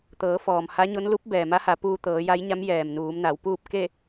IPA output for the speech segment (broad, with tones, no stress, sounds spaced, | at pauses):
t̪ ɤː˩˧ f ɔː˩ m h a˧˥ ɲ o˧˥ n l u˧˥ p̚ b ɛː˩ m a˧˥ h a˩˧ p uː˧ t̪ ɤː˩˧ j a˧˥ j ɲ a˧˥ m j ɛː˩ m n uː˩˧ m n a˩˧ w p uː˥˨ p̚ k e˥˨